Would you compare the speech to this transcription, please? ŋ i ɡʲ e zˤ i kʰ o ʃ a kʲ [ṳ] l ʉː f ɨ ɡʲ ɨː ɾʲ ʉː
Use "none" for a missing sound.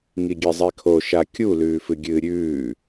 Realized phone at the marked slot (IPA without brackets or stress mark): u